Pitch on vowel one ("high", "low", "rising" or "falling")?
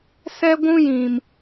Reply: high